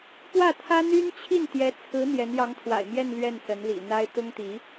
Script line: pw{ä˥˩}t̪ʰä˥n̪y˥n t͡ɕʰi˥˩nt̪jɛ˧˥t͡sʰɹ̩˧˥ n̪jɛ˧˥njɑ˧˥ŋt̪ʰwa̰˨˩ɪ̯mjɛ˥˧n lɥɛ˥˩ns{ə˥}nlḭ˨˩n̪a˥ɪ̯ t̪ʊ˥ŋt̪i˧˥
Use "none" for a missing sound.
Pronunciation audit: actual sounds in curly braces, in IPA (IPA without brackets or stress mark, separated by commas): ä˥˩, ə˧˥